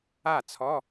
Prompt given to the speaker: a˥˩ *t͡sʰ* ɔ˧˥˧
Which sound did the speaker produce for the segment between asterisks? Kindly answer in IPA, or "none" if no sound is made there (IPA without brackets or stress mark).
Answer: t͡sʰ